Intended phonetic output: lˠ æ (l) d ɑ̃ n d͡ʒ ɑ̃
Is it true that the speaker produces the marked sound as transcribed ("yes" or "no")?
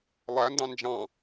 no